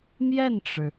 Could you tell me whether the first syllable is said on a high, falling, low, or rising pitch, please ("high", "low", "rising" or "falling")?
falling